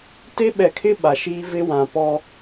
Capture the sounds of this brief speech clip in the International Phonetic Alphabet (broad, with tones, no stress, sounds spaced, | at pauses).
t e˦ ɓ ɛ˨ kʰ ɪ˦ ɓ a˨ ʃ iː˦ v ɪ˦ w ã˨ p ɔ˦